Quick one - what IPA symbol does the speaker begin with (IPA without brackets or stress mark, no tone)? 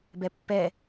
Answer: b